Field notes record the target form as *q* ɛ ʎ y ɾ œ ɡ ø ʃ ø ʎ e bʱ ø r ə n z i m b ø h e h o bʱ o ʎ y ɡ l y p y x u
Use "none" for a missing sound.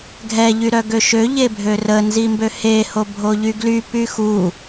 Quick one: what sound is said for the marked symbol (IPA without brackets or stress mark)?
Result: ɡʱ